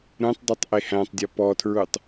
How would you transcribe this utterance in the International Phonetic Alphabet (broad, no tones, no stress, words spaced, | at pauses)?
ɾũtˤdˤutˤ ʔehæ̃tˤdʲɔ pɔtʰɹutˤ